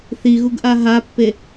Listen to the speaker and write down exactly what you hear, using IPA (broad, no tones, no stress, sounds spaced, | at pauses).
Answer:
θ i ɣ u ɡ ʔ a ɦ a pː e